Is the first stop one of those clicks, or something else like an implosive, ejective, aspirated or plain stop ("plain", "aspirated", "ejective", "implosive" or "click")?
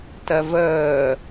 plain